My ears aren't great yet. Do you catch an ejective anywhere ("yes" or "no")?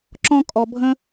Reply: yes